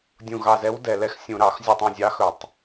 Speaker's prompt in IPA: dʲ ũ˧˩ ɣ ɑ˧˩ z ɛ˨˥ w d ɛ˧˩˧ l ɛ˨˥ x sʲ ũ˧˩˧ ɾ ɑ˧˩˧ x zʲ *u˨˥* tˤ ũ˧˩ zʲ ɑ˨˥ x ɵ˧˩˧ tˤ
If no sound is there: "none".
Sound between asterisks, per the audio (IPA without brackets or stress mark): u˧˩